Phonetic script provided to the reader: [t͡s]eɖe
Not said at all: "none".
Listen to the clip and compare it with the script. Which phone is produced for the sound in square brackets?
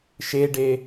ʃ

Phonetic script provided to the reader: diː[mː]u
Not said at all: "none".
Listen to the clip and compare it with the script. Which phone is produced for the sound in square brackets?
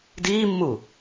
mː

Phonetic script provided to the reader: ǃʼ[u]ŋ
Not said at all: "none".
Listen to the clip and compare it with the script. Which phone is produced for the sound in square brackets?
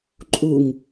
u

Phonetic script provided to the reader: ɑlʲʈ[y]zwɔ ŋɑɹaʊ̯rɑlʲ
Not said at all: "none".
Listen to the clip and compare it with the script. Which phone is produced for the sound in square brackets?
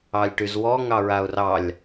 y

